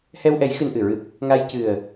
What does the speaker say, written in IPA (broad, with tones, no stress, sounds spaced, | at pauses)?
h ɛ˧ w ʔ ɛ˨˩˦ j x ɨ˧ n ʔ ɨ˨˩˨ ɹ ɨ˦˥ p̚ | ŋ a˧ j c ɨ˨˩ ə̯